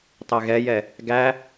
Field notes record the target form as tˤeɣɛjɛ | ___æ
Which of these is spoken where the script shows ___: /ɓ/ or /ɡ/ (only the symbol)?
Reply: ɡ